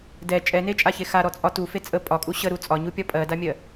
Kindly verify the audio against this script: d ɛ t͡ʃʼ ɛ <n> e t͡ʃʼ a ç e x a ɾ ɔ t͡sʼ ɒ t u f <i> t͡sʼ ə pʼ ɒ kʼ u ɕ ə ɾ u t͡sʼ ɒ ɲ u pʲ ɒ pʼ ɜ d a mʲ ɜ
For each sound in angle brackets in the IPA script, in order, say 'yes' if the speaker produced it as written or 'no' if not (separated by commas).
yes, no